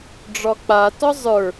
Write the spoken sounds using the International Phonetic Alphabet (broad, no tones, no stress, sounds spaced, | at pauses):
ɖ͡ʐ ɒ k͡p a t ɒ zˤ ə˞